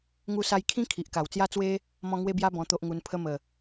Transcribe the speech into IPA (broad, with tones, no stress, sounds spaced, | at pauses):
ŋ u˧ s a˧ j kʰ ĩ˦ kʰ i˨ ʔ k a˨˩ w t͡s j a˦ t͡s w e˦ | m ɔ̃˧ ŋ w e˦ b j a˦ b ɔ̃˧ t̪ o˦ ʔ ŋ u˧ n pʰ ə˧ m ə˨˩